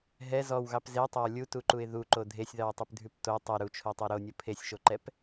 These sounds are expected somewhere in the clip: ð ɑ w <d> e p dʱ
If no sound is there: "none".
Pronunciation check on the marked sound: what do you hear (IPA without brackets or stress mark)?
tˤ